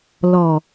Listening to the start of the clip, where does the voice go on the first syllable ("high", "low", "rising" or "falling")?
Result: low